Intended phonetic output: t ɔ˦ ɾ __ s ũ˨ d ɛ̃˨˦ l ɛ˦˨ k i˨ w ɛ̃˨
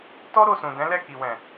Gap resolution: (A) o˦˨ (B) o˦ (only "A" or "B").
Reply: A